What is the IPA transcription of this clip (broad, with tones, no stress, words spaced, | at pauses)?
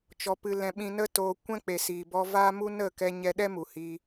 t͡ʃɔ˧pɨ˧lɛ̃˧ ɓĩ˧nə˦toː˧ kʷɛ̃˦k͡pe˨ siː˨bɔ˧ vaː˦mu˦ nə˦˨kɛ˧ ɲɛ˧ɗɛ˦ mu˨hi˧